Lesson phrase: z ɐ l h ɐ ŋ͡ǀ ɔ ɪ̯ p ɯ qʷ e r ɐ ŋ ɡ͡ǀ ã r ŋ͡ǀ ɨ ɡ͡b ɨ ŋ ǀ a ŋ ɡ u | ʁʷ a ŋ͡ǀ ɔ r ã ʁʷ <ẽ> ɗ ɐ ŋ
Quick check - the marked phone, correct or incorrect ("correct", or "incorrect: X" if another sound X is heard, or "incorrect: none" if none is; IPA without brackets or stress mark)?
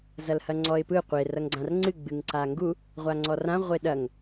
incorrect: e